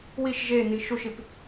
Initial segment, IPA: w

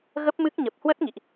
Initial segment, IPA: ɣ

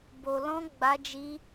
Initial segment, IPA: b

